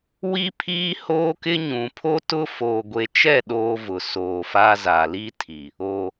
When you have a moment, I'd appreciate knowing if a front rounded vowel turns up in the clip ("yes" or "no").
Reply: no